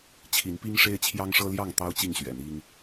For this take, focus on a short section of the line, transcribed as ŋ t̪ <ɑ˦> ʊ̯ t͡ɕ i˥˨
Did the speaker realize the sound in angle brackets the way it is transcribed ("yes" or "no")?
yes